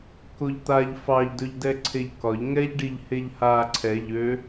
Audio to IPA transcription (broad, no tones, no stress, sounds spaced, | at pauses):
k o ʎ t̪ a ʎ f ɑ ʎ d ɵ ʎ d ɛ ǀʰ e ʎ k ɒ ʎ ŋ ɛ ʎ ɖ i ʎ h e ʎ h a ǀʰ ɛ ʎ ø